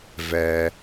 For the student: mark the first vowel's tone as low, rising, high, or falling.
low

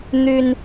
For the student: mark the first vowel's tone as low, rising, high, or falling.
high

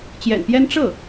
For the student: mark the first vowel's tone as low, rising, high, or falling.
low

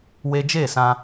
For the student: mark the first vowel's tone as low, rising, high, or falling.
high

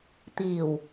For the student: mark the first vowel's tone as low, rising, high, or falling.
low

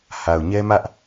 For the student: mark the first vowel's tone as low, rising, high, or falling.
low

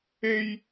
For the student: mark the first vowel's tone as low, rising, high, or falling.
high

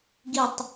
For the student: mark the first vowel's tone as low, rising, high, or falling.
low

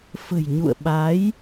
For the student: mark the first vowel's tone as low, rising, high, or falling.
low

